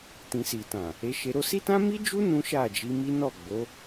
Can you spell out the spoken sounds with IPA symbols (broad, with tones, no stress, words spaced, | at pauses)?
tĩ˨si˨tã˨ | e˧ʃe˧ɾo˦ si˦tã˦ mi˦d͡ʒu˦ nũ˦ʃa˦˨d͡ʒi˧mi˦ nɔ˦˨ ɡ͡bo˨˦